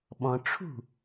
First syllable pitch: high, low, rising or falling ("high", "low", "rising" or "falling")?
low